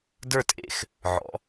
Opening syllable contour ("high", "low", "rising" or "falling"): falling